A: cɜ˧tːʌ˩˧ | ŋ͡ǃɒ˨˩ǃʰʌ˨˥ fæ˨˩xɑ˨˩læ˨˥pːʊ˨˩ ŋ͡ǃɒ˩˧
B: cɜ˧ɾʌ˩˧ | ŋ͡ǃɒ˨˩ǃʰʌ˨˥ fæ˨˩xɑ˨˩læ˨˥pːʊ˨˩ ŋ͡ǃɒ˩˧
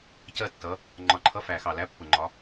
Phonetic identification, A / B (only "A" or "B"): A